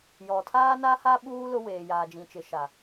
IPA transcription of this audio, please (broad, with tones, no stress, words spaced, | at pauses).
jɔ˨tʰaː˦na˦ha˦ ɓuː˦ lʊ˦ weː˨jaː˨d͡ʒĩ˨t͡ʃɪ˨ ʃa˨